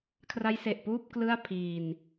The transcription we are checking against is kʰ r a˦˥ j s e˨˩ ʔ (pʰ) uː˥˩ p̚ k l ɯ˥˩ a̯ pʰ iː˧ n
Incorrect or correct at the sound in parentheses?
incorrect: p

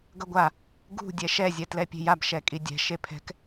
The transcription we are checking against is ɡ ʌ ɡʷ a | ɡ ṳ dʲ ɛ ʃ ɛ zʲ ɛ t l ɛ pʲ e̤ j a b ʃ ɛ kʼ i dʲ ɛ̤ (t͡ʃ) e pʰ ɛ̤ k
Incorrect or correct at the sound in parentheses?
incorrect: ʃ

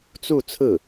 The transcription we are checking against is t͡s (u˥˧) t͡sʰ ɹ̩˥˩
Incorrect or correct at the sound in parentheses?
correct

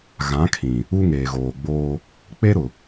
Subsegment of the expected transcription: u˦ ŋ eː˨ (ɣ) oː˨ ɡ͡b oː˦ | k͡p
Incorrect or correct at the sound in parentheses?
correct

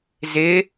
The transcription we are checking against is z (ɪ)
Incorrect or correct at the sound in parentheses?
correct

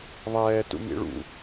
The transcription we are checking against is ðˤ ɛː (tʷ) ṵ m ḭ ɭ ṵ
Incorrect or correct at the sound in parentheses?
incorrect: t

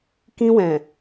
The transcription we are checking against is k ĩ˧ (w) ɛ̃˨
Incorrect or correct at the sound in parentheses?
correct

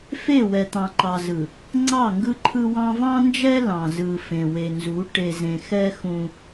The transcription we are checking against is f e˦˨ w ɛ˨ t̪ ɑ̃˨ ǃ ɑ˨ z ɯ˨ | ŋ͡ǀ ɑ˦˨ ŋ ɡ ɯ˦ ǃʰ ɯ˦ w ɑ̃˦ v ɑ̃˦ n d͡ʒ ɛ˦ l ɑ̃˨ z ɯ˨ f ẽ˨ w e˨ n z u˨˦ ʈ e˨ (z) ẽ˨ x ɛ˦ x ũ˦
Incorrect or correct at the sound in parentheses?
correct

